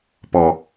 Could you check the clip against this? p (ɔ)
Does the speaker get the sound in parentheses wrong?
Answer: no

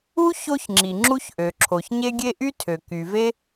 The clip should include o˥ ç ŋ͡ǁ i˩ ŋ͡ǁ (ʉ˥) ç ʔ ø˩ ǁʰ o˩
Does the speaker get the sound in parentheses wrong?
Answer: yes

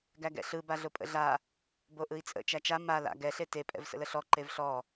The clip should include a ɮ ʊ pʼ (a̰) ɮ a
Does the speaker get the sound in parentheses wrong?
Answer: yes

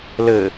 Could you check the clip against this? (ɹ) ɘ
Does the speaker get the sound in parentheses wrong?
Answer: yes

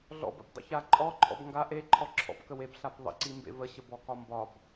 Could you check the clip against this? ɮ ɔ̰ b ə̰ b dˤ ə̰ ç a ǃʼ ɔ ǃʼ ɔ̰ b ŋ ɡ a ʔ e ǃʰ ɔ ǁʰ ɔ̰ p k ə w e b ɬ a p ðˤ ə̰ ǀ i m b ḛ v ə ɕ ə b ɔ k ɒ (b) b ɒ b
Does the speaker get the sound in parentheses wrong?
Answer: yes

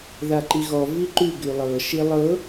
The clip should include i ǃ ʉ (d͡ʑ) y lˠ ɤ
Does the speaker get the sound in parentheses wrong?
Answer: yes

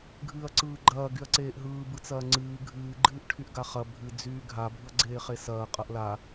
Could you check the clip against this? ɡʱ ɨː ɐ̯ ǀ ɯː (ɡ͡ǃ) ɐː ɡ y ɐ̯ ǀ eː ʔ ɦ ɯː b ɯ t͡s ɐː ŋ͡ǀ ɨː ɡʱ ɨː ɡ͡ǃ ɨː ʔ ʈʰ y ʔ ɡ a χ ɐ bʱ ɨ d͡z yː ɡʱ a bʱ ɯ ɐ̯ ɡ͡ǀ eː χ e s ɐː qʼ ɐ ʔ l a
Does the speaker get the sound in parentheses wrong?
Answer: no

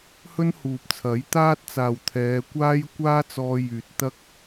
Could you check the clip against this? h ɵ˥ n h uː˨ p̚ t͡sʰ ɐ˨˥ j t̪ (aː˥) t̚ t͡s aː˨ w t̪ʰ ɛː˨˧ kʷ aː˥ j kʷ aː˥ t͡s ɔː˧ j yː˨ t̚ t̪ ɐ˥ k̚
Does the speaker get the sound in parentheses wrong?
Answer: no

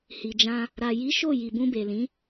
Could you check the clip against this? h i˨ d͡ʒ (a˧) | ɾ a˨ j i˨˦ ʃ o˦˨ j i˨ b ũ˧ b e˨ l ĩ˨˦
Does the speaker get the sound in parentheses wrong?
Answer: yes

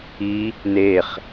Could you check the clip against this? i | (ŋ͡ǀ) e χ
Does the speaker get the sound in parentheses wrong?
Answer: yes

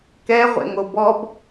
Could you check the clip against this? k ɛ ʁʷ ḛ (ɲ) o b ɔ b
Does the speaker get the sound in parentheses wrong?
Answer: yes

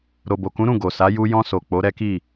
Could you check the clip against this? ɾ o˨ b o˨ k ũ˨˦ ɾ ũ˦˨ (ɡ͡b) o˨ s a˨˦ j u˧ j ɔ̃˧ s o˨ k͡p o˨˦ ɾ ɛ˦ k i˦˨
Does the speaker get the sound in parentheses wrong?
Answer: yes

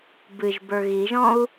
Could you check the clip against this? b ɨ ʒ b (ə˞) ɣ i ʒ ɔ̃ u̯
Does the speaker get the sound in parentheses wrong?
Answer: no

